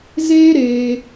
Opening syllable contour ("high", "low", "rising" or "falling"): high